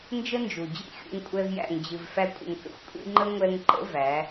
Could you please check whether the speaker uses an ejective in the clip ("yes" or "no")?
yes